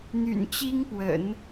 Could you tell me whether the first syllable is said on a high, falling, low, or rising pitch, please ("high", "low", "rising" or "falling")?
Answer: low